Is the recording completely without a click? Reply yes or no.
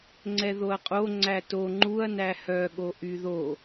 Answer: no